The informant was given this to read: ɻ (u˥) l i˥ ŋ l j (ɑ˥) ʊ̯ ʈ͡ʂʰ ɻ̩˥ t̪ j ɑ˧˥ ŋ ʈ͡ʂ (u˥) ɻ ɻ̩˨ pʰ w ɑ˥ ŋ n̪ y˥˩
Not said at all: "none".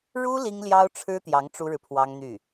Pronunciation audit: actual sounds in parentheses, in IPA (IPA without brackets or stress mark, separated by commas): u˥, ɑ˥, u˥